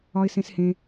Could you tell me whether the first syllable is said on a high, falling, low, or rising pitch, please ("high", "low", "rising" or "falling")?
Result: high